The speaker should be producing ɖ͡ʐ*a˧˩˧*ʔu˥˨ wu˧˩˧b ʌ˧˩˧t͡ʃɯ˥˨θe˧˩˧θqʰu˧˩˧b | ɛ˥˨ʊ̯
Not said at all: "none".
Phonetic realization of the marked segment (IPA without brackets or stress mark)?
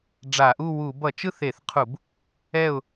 a˧˩˧